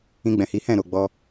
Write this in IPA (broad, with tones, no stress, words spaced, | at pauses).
ĩ˧ɡ͡bɛ̃˨hi˨˦hɛ̃˦˨ ɾo˨ɡ͡bɔ˧